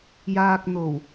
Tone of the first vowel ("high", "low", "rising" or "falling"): low